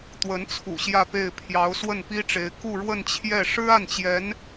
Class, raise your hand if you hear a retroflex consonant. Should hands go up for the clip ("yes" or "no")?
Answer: yes